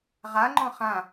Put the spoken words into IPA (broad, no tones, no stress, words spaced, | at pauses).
ʁaŋ͡ǃɔ̃ χã